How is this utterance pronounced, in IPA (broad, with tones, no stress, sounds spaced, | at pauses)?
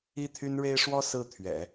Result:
i˥˩ t̪ʰ y˥ n ɻ e˥ ɪ̯ ʂ w ɔ˥ s ɹ̩˥˩ t̪ʰ ɥ ɛ̰˨˩˦